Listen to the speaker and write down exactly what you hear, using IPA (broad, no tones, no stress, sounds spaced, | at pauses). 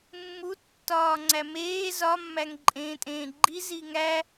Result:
mː u tː ɒː ŋ͡ǀ æ m eː z ɒ mː æ ŋ ǃʼ ẽː tʼ ẽː ɡ͡ǃ i z i ŋ æ